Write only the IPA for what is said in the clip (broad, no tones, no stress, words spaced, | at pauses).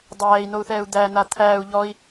dˤæːi̯nou̯θɛːu̯ d̪æn̪a t̪ʰæːu̯ ʎɔi̯